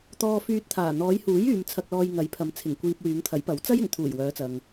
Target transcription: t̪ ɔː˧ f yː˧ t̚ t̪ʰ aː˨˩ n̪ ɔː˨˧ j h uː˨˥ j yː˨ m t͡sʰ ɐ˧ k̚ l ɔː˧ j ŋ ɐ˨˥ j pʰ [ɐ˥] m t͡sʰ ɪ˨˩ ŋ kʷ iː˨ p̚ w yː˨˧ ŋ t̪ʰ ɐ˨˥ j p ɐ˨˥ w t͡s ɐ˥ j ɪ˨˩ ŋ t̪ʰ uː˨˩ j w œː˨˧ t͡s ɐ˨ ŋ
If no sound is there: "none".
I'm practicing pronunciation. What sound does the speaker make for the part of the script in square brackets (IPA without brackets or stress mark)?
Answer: ɐ˨˧